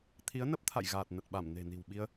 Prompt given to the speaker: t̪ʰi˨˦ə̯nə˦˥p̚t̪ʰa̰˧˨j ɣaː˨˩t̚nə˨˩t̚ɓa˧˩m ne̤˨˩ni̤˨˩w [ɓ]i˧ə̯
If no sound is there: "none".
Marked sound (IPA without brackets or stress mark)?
ɓ